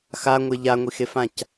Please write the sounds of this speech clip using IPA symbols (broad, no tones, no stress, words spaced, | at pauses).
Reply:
xaŋʷe ʎaŋʷixefãc